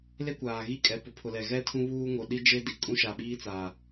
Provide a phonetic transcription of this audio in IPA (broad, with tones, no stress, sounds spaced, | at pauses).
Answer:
l e˦ kʷ aː˨ ɣ i˦ kʼ ɛ˨ p ʊ˨ pʰ ʊ˨ l ɛ˨ ɣ ɛ˦ tʰ ũ˦ β uː˦ ŋ o˨ ɗ i˦ d͡ʒ e˦ d i˨ kʼ ũ˦ ʃ a˨ ɓ iː˦ t͡s aː˨